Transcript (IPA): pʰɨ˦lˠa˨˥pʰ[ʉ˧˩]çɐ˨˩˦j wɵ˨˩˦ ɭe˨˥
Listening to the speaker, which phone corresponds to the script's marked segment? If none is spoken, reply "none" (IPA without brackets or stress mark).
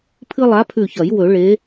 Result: ʉ˧˩